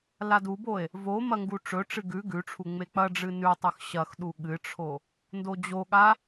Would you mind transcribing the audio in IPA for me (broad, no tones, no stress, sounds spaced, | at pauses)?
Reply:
l a d u b o e̯ | v o m ɐ ŋ ɡ u ʈ͡ʂ ɵ ʈ͡ʂ ɨ ɡ ʉ ɡ ʉ ʈ͡ʂʰ u ŋ͡m e k͡p ɐ ɖ͡ʐ ɨ n ʉ tˤ ʉ x ɕ ɐ x ɗ u ɠ ɨ ʈ͡ʂʰ o | n d o d͡ʑ o ɠ a